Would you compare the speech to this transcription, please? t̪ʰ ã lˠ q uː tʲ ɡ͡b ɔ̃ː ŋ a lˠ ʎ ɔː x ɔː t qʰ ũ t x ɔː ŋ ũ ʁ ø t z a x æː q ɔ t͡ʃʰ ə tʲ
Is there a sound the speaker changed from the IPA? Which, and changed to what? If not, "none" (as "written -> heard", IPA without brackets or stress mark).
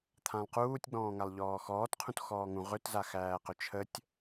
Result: ɔ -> ɵ